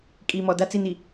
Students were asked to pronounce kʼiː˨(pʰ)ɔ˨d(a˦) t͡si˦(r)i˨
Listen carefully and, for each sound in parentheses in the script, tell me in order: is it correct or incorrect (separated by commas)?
incorrect, correct, incorrect